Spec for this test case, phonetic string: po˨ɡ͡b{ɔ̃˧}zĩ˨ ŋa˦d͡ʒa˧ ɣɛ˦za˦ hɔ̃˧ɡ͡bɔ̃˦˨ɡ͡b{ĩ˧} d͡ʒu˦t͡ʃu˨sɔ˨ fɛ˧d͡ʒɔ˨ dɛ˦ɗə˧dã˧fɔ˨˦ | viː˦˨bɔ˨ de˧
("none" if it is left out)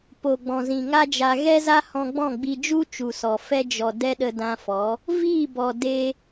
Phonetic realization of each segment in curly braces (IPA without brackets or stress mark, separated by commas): ɔ̃˨, i˧